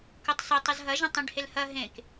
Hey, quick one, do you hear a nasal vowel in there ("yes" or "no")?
yes